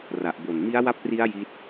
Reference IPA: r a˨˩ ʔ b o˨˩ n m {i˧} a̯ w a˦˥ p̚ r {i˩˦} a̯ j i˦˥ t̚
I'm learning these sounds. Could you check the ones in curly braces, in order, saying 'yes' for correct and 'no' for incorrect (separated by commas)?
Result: no, no